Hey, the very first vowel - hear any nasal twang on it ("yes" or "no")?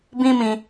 yes